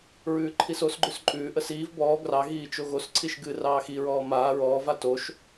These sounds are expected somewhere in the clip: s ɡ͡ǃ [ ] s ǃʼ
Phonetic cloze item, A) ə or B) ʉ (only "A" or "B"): B